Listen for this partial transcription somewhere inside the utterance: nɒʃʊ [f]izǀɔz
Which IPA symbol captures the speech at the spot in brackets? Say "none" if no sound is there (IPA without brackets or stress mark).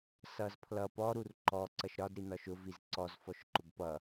v